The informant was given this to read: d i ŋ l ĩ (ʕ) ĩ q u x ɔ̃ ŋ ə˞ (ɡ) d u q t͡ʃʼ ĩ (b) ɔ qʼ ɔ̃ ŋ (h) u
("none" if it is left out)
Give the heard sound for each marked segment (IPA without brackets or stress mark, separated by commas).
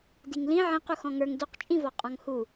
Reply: ʕ, ŋ, v, h